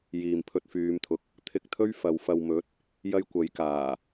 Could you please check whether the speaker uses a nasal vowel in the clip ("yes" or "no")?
no